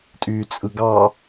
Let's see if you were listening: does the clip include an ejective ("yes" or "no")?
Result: yes